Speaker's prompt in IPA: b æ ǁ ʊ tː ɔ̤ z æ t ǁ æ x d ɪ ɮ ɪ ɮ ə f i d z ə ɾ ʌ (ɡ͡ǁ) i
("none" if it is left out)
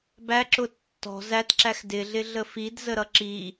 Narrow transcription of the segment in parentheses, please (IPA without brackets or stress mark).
ǁ